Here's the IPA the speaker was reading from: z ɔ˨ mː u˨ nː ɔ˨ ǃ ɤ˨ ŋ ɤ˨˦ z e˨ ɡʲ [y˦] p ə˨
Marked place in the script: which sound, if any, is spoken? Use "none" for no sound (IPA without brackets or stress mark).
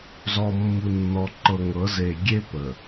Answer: e˦